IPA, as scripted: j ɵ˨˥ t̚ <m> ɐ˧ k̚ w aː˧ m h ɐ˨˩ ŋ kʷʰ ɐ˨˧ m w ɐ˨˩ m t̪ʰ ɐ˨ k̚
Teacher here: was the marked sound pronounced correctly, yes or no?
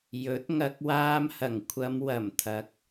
no